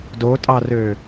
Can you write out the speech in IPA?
d o tʼ ɑ r ø

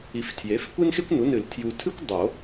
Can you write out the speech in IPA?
i˨ f tʰ j e˩˥ f kʷ e˥ n x e˥ kʷ n u˩˥ n ɨ˨˩˦ l tʰ j u˨ tʰ ɨ˥ kʷ dˤ o˨˩˦

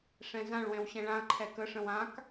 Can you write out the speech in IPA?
ʂ ɛ̃ z ã ɭ w ɛ̃ w ɕ ɛ̃ ɭ ã ɐ̯ ǃʰ ɛ k ə ʂ ə̃ w ã k

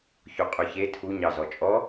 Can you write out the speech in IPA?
ç o qʼ ø ç e tʰ u ɲ ɑ z ɔ t͡ʃʼ ɔ

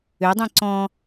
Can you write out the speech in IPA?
ø dˤ ĩ ǀ ɔ̃

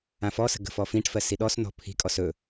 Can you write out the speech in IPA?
ã f ɔ s ə̤ ɡ ə̤ f ɔ f ĩ ʈ f ɜ s i ɗ ɔ s n ɔ̤ pʰ i̤ kʼ ɔ s ɵ

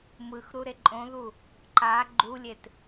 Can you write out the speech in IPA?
m ɯ x ɾ u ɾ e ǃʼ õ ð u | ǃ a ɡ͡ǃ u lʲ e t

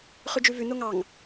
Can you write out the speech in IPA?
χ ʉ d͡ʒ ʉ v ʉ n o ŋ ɑ ŋ

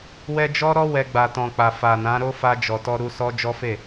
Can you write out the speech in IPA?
w ɛ˧ d͡ʒ ɔ˦ ɾ ɔ˦ w ɛ˧ ɡ͡b a˨ t ɔ̃˨ k͡p a˨ f a˨ n ã˨˦ ɾ o˦ f a˧ d͡ʒ ɔ˨ t ɔ˧ ɾ u˧ s ɔ˦ d͡ʒ ɔ˦ f e˦˨

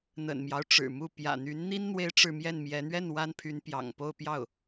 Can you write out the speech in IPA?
n̪ ə̰˨˩ n m j ɑ˦ ʊ̯ ʈ͡ʂ ɻ̩˨˩ m u˥˩ p j ä̰˨˩ n̪ y˧˥ n n̪ i˥ n n̪ w e˥ ɪ̯ ʈ͡ʂ ɻ̩˥˧ m j ɛ˥˩ n m j ɛ˧˥ n̪ ɥ ɛ˥˩ n w a˥ n pʰ y˧˥ n p j ɑ̰˨˩ ŋ p o˥˧ ʊ̯ p j ɑ˥˩ ʊ̯

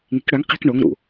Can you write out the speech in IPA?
ŋ i̤ k ɽ œ ŋ q i̤ k ɳ o ŋ ɾ ṵ

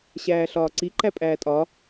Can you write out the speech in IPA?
ɕ æː ɬ ɒː ǀ i ǃ æ pʼ æː tʼ ɒ

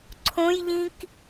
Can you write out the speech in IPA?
ǀʰ õ j ʎ ĩ k

